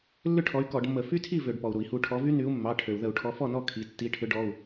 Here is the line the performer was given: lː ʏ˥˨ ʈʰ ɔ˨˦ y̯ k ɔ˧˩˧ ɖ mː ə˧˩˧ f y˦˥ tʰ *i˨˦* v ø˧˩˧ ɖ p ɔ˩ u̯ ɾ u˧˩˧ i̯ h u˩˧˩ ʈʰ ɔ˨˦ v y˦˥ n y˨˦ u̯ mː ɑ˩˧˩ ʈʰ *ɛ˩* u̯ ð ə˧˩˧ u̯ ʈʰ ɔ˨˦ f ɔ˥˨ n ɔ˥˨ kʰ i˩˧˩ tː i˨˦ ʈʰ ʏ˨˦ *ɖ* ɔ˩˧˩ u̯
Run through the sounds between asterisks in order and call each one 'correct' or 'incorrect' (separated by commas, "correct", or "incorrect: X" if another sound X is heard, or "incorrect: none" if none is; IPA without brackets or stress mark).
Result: incorrect: i˥˨, incorrect: ø˩, correct